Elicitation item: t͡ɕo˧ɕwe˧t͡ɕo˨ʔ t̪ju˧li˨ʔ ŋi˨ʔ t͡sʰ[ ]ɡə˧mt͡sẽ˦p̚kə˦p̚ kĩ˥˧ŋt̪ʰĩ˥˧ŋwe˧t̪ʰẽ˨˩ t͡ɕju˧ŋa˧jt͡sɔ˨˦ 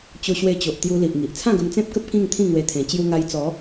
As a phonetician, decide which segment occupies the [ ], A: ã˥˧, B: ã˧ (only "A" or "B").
A